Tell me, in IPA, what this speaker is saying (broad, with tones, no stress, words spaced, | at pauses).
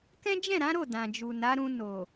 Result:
kɛ̃˦d͡ʒɛ̃˦˨ɾã˨˦ɾo˦˨ dã˨d͡ʒu˨na˨˦ɾũ˧ no˨